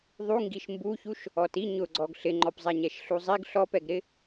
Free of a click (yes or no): no